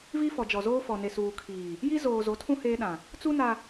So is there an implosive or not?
yes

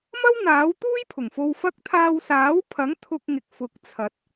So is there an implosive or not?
no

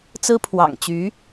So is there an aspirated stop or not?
yes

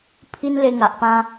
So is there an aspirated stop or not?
yes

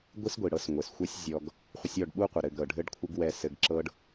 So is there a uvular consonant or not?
yes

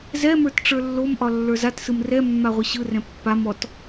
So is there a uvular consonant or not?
yes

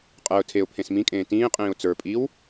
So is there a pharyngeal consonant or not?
no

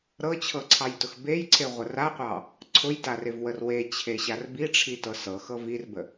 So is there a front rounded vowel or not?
no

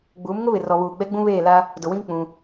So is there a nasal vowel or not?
yes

